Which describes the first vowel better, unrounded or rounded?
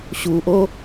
rounded